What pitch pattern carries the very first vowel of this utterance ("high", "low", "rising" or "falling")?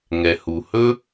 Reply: low